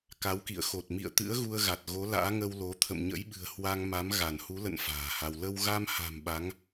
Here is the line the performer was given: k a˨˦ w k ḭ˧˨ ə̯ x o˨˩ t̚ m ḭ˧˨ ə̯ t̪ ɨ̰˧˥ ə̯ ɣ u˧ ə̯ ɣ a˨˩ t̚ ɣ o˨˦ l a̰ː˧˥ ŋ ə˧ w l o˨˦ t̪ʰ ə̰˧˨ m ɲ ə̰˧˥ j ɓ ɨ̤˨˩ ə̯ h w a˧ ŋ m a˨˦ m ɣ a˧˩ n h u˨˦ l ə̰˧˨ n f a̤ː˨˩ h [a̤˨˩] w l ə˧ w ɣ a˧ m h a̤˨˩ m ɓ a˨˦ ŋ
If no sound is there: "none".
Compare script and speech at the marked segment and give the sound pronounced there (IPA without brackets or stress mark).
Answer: a˧